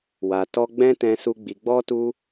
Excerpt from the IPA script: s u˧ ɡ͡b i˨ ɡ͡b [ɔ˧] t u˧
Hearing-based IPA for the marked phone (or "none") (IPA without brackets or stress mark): ɔ˧